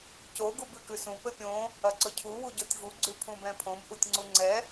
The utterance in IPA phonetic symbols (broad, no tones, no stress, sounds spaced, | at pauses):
c o ɡ u b ʉ k ʉ s ũ p ɘ pʲ õ | ɐ ǀ ɵ cʰ u w u ɟ o tʲ v u ɡ͡ǀ ʉ pʰ ũ b ɛ̃ pʰ õ b ʔ u tʲ ŋ͡ǀ u ŋ͡ǀ ɛ